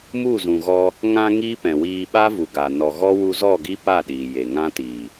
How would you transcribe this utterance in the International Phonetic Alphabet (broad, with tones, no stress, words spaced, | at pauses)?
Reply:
mu˦˨zũ˨ɣɔ˧ | ŋã˧ ŋi˦pɛ̃˨wiː˧ ɓa˦vu˨ɡa˨ nɔ˨ɣɔ˦wu˧zɔ˦˨ ɡi˦pa˦˨ ɗiː˨je˨ŋã˦ tiː˨